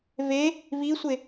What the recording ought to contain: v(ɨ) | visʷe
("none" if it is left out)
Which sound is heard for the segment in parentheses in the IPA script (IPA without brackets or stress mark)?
e